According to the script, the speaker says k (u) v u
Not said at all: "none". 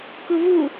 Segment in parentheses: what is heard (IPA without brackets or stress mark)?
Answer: u